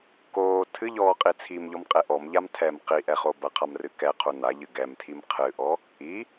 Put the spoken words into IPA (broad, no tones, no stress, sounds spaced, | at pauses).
k oː tʰ ɨ ʎ ɔː qʼ i t͡sʰ i m ʎ ɔ m qʼ e ʔ ɔ m ʎ a m tʰ ɛ m q i ʔ ɛ χ o b ɐ qʰ a m r ɨ k ɛ qʰ u n a ʎ ɨ ɡ ɛ m tʰ i m qʰ ɨ ʔ ɔ | i